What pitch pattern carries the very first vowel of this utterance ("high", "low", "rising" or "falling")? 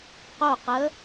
falling